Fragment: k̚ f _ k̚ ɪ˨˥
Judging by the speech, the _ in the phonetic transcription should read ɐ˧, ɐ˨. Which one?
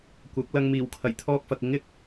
ɐ˨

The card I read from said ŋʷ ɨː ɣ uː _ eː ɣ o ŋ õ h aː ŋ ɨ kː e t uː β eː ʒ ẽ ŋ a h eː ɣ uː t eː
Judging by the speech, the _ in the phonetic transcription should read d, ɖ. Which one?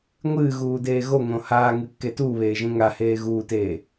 d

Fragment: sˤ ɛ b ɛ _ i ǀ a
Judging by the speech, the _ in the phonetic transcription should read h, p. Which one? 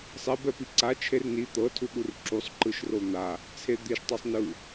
p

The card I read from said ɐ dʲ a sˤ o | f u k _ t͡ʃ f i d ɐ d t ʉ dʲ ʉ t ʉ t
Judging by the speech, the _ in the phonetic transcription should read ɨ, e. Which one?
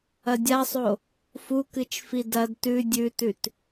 ɨ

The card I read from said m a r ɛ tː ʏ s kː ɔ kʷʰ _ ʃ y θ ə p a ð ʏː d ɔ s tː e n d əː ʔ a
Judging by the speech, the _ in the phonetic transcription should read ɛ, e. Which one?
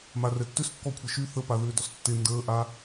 ɛ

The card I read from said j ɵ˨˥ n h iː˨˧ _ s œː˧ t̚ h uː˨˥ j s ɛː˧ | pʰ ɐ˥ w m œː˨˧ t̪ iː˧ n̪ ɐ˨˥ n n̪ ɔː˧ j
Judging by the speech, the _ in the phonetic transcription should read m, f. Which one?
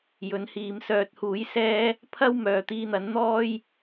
m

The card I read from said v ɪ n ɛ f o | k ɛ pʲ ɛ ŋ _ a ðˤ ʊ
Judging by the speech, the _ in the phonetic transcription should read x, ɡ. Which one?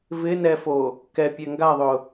ɡ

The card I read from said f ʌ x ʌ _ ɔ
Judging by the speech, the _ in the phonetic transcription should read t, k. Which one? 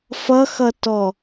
t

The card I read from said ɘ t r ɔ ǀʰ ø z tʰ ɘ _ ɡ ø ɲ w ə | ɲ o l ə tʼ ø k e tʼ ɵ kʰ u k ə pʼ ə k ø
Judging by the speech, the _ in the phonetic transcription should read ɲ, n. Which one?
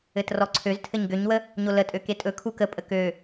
ɲ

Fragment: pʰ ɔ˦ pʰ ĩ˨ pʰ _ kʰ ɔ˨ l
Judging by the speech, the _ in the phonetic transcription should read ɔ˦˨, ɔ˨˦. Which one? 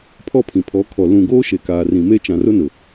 ɔ˨˦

